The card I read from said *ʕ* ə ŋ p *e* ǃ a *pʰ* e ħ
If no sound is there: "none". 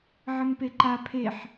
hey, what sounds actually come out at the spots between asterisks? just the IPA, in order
ʕ, e, pʰ

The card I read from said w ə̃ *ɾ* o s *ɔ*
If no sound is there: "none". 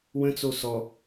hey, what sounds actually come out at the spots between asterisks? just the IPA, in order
t͡s, ɔ

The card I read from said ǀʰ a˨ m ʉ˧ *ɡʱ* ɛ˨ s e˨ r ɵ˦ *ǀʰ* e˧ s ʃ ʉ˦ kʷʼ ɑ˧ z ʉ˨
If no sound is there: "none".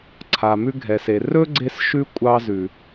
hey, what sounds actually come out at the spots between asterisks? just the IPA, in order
ɡʱ, ɡ͡ǀ

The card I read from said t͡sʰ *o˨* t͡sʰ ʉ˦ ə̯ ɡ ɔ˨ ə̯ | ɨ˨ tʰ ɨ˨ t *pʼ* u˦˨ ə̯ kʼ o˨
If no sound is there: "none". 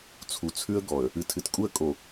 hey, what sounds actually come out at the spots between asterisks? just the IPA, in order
u˨, kʼ

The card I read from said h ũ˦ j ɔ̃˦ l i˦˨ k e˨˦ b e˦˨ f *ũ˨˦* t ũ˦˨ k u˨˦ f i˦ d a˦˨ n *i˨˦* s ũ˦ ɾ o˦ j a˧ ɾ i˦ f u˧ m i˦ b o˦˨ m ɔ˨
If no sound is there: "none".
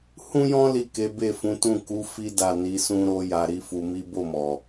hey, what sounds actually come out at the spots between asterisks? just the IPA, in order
ũ˨˦, i˨˦

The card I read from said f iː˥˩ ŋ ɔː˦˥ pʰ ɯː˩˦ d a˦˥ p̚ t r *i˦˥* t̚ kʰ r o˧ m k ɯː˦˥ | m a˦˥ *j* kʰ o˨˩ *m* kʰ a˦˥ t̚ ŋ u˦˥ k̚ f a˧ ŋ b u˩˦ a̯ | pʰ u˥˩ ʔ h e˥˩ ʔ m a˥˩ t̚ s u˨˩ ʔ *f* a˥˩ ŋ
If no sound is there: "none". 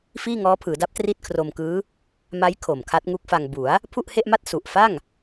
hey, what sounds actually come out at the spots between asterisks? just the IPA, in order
i˥˩, j, m, f

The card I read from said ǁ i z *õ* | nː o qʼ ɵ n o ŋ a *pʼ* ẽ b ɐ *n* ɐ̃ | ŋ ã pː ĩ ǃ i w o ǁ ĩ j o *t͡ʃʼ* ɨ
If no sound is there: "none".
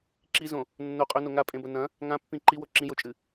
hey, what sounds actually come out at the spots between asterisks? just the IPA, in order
õ, pʼ, n, t͡ʃʼ

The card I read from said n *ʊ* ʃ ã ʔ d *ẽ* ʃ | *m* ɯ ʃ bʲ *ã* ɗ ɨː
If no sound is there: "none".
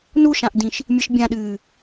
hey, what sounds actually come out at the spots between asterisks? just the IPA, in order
u, ĩ, mʲ, ã

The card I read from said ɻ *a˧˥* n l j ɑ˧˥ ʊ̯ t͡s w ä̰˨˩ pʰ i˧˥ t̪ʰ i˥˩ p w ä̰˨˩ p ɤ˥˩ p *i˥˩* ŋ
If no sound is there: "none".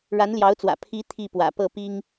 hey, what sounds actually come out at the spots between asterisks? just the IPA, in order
a˧˥, i˥

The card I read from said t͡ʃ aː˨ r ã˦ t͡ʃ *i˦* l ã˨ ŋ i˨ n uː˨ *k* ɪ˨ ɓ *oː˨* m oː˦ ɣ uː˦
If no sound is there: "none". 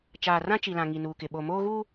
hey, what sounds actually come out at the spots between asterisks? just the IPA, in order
i˨, k, o˨

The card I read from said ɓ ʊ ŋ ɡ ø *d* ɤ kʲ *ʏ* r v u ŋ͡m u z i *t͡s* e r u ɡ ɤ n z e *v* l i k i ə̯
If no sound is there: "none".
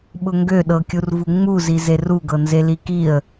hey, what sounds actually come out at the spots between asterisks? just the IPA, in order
ɗ, u, z, none

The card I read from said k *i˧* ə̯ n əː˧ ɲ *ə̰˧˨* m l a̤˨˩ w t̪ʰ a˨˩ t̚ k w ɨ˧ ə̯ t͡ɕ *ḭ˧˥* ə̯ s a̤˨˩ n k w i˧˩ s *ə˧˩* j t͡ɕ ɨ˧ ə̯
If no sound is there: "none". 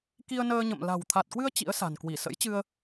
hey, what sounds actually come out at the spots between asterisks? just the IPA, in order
i˧, ə̰˧˨, ḭ˧˥, ə̰˧˥

